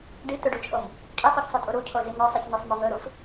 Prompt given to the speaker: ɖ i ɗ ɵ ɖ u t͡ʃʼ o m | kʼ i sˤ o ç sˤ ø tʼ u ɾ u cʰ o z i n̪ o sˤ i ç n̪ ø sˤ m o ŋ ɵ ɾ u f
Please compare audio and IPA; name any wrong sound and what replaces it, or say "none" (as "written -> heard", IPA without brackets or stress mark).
ɗ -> t̪